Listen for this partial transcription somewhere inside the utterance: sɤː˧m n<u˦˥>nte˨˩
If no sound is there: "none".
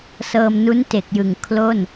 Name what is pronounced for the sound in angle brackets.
u˦˥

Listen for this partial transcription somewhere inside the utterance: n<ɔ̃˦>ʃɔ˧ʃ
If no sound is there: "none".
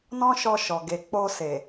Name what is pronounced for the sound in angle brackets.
ɔ̃˦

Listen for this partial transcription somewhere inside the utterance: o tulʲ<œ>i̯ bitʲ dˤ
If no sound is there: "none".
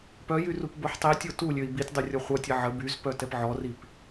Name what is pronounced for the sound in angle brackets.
ø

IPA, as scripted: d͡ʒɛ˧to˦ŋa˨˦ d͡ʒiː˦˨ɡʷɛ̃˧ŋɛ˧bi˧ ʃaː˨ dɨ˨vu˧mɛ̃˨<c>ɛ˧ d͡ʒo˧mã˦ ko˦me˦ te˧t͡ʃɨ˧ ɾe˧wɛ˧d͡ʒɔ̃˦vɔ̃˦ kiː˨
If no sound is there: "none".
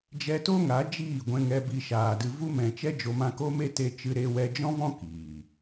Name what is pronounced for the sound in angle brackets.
t͡ʃ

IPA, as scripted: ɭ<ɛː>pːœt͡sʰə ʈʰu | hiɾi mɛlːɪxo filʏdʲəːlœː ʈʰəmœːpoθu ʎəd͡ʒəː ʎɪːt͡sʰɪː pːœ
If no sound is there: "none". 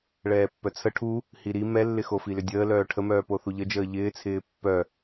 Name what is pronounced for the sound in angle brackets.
ɛː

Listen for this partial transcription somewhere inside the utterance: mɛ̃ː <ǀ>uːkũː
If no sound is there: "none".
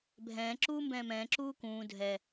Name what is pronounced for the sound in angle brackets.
ǁ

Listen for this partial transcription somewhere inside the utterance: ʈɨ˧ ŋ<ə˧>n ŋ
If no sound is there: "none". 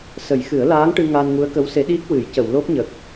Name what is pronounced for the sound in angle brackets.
a˧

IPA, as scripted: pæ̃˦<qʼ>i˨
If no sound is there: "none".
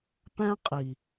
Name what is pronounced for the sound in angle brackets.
qʼ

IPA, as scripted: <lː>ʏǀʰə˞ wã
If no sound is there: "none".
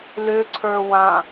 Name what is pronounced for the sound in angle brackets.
l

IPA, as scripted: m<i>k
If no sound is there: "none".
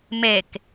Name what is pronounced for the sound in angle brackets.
e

